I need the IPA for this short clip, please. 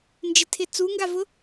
nd͡ʒɪtʰɪ t͡suŋɡavʊ

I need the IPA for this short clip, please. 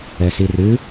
ɛsirɨ

